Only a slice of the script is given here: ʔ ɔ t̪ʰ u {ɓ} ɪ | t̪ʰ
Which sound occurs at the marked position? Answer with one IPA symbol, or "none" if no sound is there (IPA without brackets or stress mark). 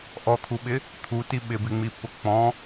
ɓ